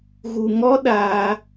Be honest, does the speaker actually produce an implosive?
yes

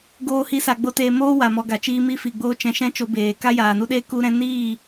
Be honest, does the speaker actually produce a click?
no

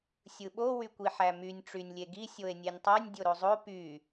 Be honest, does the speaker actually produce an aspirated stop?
no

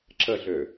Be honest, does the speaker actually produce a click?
yes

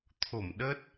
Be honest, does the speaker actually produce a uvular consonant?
no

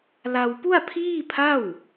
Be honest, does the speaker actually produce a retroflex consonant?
no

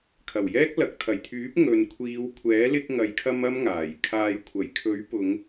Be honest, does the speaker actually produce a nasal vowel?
no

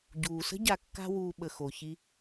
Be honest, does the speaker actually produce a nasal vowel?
no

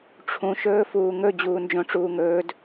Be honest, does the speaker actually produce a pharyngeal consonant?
no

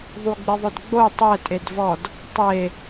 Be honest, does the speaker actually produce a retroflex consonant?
no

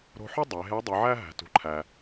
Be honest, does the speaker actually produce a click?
yes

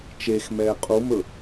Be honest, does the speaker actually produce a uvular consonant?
yes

